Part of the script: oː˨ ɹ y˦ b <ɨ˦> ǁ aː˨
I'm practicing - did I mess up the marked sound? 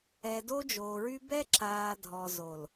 yes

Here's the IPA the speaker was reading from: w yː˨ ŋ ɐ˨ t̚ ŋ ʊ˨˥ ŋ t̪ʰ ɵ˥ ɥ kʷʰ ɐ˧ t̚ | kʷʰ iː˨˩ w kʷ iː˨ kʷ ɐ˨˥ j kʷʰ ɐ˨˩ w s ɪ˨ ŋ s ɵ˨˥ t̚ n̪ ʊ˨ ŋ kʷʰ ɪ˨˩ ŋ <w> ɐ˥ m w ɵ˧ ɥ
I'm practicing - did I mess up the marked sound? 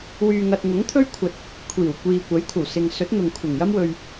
yes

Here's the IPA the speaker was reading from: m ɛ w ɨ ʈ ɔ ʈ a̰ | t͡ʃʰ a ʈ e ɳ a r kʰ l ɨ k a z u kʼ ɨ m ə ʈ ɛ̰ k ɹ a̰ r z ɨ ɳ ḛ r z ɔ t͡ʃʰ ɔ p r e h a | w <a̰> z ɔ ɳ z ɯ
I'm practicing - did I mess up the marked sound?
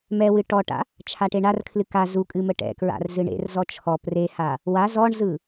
yes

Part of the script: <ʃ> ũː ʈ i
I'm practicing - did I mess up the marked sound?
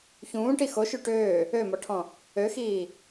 yes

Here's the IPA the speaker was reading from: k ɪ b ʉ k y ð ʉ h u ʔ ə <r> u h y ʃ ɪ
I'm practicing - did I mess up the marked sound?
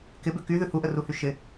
no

